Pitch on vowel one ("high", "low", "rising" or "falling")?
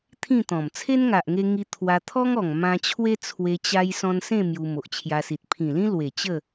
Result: falling